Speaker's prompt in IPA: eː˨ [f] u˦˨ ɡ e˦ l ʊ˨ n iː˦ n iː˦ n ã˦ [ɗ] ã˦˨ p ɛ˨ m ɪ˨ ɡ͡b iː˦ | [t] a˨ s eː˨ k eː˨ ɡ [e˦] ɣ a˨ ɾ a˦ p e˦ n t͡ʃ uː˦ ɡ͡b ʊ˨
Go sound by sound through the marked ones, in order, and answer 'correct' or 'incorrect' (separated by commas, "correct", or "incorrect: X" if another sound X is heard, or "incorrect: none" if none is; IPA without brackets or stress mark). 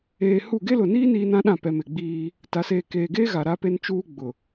incorrect: h, correct, correct, correct